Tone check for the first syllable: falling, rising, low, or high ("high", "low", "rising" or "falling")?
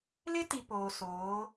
high